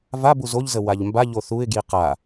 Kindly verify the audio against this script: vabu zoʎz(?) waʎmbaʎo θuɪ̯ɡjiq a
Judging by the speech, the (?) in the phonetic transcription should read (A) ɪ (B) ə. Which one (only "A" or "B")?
B